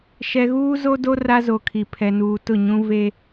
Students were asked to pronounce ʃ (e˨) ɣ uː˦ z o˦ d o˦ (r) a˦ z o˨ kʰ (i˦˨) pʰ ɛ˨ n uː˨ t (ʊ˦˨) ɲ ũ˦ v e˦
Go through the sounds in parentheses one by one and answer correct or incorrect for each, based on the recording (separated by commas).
incorrect, correct, incorrect, correct